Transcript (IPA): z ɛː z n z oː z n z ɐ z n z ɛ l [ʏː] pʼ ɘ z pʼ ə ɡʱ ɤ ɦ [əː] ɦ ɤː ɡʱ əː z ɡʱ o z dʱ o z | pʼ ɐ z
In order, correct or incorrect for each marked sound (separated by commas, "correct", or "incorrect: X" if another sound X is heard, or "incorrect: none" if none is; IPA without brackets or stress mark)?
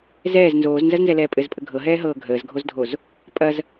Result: incorrect: ɛː, incorrect: ɛː